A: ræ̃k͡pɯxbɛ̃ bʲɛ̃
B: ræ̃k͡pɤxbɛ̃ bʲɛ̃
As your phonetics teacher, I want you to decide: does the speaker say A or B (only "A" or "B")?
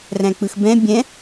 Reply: A